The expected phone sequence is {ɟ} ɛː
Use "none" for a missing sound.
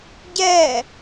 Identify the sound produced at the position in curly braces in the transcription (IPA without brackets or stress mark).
ɟ